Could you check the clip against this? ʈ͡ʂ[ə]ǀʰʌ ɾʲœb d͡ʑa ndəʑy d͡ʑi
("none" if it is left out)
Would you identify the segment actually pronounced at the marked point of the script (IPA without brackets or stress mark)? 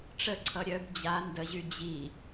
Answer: ə